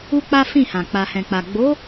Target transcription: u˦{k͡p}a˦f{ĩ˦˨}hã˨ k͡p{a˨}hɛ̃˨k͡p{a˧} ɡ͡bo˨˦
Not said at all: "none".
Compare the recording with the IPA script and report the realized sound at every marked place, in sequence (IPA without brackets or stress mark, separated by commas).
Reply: k͡p, ĩ˦˨, a˨, a˨